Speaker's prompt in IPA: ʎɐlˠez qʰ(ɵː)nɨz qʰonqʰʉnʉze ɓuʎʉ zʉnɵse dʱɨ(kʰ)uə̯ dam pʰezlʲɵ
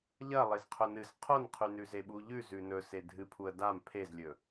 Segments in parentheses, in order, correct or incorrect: incorrect: ɵ, incorrect: pʰ

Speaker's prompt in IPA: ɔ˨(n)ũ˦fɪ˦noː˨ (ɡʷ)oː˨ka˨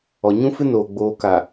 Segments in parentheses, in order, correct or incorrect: incorrect: ɲ, incorrect: ɡ͡b

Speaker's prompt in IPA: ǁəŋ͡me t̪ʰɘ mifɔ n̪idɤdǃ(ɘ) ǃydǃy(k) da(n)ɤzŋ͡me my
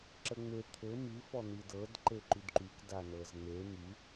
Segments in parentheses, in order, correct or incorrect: incorrect: e, correct, correct

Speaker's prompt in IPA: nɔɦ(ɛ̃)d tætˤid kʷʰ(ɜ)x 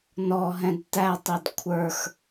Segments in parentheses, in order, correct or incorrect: correct, incorrect: ə˞

